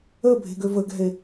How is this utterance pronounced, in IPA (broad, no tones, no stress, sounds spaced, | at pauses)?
ə bʱ e̤ ɡ ø v ə ɡ ɛ̤ e̯